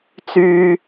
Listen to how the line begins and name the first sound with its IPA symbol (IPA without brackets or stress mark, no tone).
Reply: t͡s